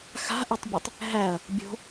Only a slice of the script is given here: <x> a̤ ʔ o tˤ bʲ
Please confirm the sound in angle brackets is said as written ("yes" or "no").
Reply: yes